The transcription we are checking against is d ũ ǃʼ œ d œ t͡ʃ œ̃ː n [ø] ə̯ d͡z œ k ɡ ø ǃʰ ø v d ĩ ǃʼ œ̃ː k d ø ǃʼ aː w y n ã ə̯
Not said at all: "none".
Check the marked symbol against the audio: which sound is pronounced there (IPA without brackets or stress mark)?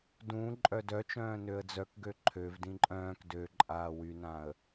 ø